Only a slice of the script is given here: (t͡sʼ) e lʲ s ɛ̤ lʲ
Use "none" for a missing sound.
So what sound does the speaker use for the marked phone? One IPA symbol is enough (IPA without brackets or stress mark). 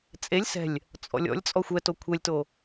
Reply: t͡sʼ